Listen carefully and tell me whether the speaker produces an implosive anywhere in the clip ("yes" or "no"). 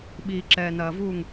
yes